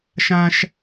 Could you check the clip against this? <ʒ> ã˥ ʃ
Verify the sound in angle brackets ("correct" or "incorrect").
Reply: incorrect